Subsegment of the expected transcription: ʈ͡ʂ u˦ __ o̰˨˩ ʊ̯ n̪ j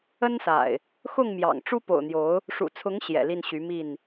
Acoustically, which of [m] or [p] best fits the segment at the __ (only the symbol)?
p